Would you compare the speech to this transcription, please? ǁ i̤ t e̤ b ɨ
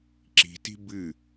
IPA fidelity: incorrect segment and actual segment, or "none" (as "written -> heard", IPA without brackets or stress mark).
e̤ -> i̤